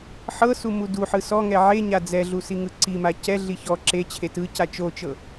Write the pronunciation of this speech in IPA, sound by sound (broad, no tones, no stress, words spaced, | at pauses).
ħɤsu muduħɯ sɔŋɛ ʕe ɲad͡zɛɮu siŋɯǀima cɛɮi çɔ ǁe t͡ɕʰetɯca t͡ʃot͡ʃɤ